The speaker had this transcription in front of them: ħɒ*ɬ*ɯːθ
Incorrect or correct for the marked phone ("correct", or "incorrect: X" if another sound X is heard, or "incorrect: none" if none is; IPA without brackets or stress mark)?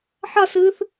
incorrect: s